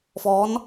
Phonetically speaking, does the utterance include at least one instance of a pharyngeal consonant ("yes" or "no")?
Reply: no